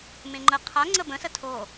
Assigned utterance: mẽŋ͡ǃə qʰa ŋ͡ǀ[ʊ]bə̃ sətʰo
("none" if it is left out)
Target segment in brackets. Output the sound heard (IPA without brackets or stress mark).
ə